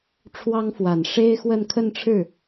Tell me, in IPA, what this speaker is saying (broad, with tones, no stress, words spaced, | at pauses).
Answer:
ʈ͡ʂʰwɑ˥ŋfwa˨˩n ʂe˥ɪ̯xwə˥˧n kʰə˥˧nʈ͡ʂʰɻ̩˥˩